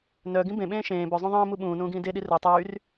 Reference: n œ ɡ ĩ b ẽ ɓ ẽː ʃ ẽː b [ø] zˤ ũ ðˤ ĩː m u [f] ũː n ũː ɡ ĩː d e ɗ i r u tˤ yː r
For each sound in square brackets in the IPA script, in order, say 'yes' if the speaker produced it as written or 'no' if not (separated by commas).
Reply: no, no